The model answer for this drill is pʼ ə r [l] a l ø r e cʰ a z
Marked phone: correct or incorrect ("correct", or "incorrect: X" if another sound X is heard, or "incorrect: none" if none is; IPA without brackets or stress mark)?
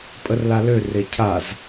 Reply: correct